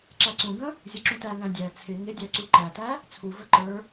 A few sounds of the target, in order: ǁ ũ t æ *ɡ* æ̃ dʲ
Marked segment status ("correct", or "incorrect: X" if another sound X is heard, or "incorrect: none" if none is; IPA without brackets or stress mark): incorrect: ŋ